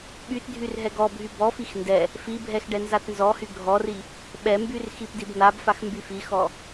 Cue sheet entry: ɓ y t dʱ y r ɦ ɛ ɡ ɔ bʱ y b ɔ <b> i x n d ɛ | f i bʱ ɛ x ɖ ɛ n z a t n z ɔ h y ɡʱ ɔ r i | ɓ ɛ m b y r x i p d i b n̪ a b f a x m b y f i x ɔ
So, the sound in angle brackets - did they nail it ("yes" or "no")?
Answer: no